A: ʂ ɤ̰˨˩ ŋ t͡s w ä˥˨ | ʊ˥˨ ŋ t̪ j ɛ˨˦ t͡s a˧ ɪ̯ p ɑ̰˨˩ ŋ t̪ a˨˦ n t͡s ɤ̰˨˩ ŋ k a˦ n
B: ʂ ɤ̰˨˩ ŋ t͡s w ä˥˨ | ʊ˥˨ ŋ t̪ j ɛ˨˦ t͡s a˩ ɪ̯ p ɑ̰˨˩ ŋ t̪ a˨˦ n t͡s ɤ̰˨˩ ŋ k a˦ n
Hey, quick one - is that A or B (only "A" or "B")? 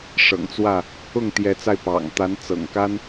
A